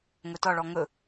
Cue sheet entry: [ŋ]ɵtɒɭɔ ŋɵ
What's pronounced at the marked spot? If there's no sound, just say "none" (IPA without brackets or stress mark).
ŋ